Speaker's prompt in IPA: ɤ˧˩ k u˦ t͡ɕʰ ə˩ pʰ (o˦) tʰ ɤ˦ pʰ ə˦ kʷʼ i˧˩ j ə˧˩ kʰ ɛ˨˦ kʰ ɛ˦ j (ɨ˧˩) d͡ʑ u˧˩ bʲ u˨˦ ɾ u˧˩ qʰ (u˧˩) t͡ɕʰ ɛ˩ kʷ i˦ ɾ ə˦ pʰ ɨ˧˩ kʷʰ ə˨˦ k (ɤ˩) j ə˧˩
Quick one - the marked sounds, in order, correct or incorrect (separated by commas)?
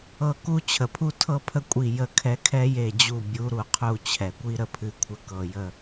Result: incorrect, incorrect, correct, correct